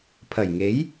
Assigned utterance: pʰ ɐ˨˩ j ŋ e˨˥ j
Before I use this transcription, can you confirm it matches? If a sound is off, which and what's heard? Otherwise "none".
none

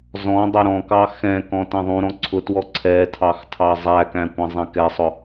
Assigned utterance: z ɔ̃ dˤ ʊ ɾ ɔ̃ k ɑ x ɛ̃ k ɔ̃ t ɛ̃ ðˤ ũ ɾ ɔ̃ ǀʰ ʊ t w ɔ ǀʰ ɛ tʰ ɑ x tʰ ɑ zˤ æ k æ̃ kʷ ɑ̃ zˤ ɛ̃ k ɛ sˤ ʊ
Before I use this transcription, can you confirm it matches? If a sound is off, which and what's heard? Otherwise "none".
none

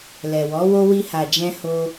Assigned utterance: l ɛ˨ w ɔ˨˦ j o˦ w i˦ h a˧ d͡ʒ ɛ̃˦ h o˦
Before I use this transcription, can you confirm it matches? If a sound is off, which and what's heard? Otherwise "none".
j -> w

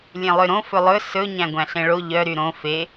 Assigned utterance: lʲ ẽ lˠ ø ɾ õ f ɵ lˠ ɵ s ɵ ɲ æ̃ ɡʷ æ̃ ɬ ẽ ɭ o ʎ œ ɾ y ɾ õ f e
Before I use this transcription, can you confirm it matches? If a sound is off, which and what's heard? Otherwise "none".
none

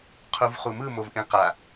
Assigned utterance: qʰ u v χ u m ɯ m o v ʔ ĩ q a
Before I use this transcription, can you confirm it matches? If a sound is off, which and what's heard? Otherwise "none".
none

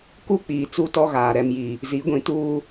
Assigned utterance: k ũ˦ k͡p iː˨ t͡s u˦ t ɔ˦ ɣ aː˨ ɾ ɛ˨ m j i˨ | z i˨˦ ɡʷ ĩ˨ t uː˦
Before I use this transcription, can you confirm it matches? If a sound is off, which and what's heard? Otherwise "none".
ũ˦ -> u˦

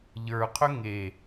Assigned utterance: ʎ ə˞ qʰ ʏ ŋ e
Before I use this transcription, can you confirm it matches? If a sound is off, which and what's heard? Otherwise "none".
none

